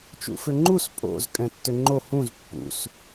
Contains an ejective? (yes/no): yes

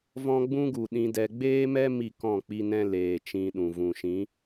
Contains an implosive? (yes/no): yes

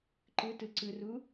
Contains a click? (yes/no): yes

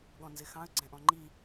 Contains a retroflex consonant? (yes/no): no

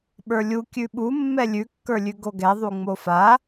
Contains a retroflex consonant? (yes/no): no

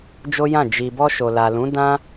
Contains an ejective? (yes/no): no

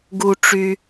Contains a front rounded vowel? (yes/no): yes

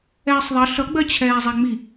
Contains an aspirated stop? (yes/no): yes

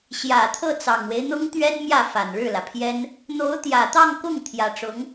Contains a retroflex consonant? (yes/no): yes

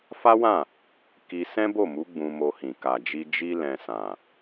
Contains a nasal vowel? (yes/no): yes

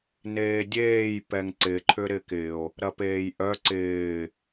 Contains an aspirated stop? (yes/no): yes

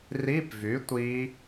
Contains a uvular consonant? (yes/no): no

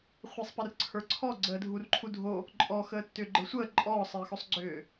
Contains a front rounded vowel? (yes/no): yes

